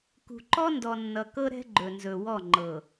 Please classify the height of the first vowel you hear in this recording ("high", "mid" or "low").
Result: high